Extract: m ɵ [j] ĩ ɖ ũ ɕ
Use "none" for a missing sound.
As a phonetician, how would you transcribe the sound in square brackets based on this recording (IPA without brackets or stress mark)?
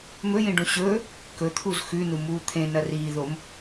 j